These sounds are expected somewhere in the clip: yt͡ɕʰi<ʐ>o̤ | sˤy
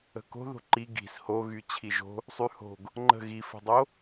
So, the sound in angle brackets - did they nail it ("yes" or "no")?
no